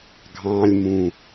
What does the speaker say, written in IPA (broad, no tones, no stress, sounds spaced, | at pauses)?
ɡʱ ɑ̃ lʲ m ũ